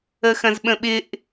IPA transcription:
əxɐ̃zɓə̃ɓɪʔ

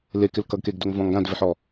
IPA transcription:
lekɪl kʌɡkeɡdoŋvɔ̃ŋ ɡãdvɪħɔ

